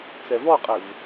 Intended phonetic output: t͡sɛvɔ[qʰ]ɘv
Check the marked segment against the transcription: incorrect: qʼ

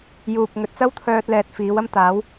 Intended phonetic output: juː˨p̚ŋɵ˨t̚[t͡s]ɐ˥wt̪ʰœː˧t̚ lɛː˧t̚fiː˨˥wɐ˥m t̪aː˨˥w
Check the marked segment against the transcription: correct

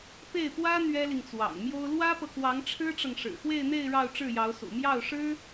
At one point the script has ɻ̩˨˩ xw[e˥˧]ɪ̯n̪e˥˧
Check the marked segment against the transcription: correct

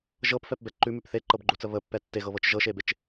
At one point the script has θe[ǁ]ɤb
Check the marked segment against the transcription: incorrect: ǃ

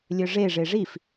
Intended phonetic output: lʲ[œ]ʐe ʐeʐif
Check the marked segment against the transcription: correct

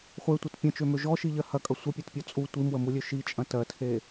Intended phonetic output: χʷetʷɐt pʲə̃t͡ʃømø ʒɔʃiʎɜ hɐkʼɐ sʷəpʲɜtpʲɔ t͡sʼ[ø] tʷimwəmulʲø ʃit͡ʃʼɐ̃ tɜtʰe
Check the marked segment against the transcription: incorrect: u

